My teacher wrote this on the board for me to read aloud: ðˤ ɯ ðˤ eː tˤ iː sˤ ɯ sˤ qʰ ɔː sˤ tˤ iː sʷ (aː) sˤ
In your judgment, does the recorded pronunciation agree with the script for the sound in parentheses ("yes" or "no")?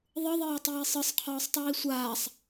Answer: yes